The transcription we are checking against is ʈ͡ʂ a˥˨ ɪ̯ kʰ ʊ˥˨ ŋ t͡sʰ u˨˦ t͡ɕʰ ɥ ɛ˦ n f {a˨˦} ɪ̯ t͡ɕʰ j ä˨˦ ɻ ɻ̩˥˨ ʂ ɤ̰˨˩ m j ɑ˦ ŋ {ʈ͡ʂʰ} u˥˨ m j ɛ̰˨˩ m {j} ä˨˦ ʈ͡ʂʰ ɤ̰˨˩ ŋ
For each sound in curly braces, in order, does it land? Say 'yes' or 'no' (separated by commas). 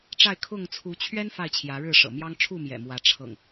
no, yes, no